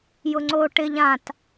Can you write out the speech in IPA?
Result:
jʊŋ͡ǀo ʈɪʎ ãt

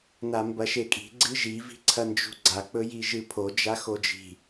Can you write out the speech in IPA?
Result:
nambɐʃekʼi̤ ɡ͡ǀɨʒi vi̤ǀʰɐnd͡ʒṳɡ͡ǀa k͡pɵjiʒɨpʰo d͡ʒaxod͡ʒi̤

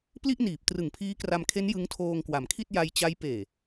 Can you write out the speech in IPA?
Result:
pli˥˩ʔniː˨˩p̚ trɯ˨˩ŋpʰiː˦˥kra˧mkʰe˦˥n jɯ˦˥ŋtʰoː˧ŋkwa˩˦mkʰi˥˩t̚ ja˧jt͡ɕa˦˥j peː˨˩

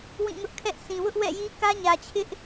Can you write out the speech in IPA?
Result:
wĩ˦˨ŋʊ˦ʔkʰɛ˦ʔ sʰĩ˨wʊ˦ʔwɛ̰˦˨ji˦ kä˦ɲä˨t͡ɕʰɪ˦ʔ

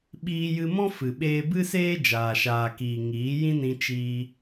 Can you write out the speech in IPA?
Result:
ɓiː˧jɨ˧mɔ̃˦ fɨ˨ ɓeː˧bɨ˦seː˦ d͡ʒaː˨ʃaː˨kiː˨ ŋiː˨˦ jĩ˦nĩ˧ t͡ʃiː˧

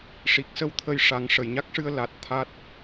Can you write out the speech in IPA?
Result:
ʂi˨˩k̚sə˧w t̪ʰə˧j ʂa˨˩˦ŋ ʂə˨˩˨jɲa˦˥k̚ʂɨ˧ə̯ la˨˩t̚ t̪ʰa˦˥t̚

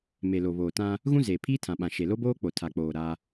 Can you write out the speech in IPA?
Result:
me˨lo˨βoː˨ tã˦ | ɣũ˦zeː˨pʰiː˦ tʰã˨ɓã˨ʃe˨ lo˦boː˦k͡po˨ tʰa˨k͡poː˨ ɾa˦

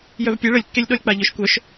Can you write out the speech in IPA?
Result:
jœvpʲɛ ɭəlʲkːelʲɗɔlʲ k͡paʎœʃkʷœʃ

